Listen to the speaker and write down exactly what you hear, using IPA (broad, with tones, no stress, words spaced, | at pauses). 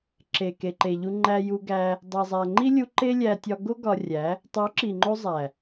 ǁe˨ke˨ǃe˨ ʎu˧ ŋ͡ǃæ˧ju˧ɡæ˧ | dˤi˨zˤæ˨ŋ͡ǃi˦lʲu˧ ǃe˦lʲæ˧ tʲɒ˧ɡo˦ ɡɒ˧rʲæ˨˦ | tˤo˨˦ǁi˨ŋ͡ǃo˧ zˤæ˨